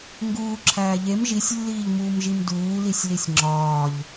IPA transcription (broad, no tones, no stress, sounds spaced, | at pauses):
ŋ ɡ uː ǁʰ æː ʎ e m ʒ i sʲ lː iː ʎ m uː m ʒ i m d uː l i sʲ l i sʲ ŋ͡ǁ ɒː ʎ